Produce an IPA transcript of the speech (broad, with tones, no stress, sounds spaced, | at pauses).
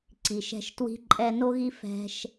ǀ i˨ ʃ ɛ̤˧ ʃ t w i̤˦ ǃʼ ɛ˧ n o˦ ɣ i˦ f ɛ̤˦ ʃ